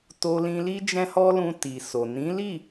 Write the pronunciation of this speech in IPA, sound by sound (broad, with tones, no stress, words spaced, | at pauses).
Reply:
to˧lĩ˧li˦ d͡ʒɛ̃˦hɔ˦lũ˧ ti˨so˨ nĩ˨˦li˦˨